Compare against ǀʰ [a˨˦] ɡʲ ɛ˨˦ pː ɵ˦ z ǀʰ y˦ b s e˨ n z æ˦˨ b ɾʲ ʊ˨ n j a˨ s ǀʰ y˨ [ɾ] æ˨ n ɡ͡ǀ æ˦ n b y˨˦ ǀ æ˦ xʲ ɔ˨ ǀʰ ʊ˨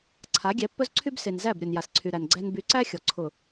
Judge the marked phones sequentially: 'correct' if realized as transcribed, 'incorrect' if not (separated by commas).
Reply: correct, correct